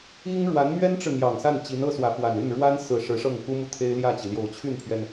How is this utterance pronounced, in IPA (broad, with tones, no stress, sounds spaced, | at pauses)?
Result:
i˥ ŋ ɻ w a˧˥ n m ɥ ɛ˥ n ʈ͡ʂ ɻ̩˨ n̪ j ɑ˨˩ ŋ s a˥˩ n t͡ɕ i˧˥ n ɤ˥ s w ä˧˥ f w a˨˩ n y˥˩ n ɻ w a˥ n s ɹ̩˨˩ ʂ ɻ̩˧˥ ʂ ɤ˥˩ ŋ k u˥ m u˥˩ t̪ʰ e˥ ɪ̯ l j ä˥˩ t͡ɕ i˩ l j o˨˩ ʊ̯ t͡ɕʰ y˥˩ n pʰ ɥ ɛ˩ n